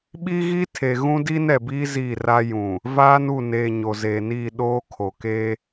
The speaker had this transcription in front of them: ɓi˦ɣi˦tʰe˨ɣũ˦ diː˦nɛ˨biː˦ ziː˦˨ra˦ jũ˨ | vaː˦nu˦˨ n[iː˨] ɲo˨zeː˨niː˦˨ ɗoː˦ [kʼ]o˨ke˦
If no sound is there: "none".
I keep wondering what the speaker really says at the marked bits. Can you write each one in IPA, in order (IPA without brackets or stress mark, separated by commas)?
eː˨, kʰ